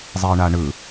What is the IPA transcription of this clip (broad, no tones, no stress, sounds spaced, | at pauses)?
zˤ i ə̯ ɳ a ɳ ɯ